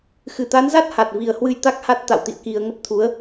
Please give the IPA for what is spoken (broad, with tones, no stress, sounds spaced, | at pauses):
x ɨ˧˩ t̪ a˨˦ n z a˦˥ t̚ h a˨˩ t̚ v i˨˩ ə̯ h w ɨ˧ j t̪ a˦˥ k̚ h a˦˥ t̚ t̪ a̰˧˨ w t̪ ḭ˧˨ ə̯ k i˨˩ ə̯ ŋ ə˦˥ p̚ t̪ʰ u˨˦ ə̯